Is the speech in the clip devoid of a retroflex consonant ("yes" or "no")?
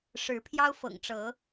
no